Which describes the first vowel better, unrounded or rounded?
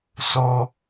rounded